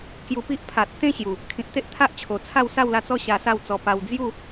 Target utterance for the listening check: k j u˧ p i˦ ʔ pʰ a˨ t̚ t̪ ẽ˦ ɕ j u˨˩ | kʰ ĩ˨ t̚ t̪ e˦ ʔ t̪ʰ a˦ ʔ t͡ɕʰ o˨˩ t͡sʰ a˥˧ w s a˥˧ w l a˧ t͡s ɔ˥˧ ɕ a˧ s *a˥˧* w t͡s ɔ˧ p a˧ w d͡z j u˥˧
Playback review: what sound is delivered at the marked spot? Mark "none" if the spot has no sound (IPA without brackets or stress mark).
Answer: a˥˧